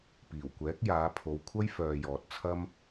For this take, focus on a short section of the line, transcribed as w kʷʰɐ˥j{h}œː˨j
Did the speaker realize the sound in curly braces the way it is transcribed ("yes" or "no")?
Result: no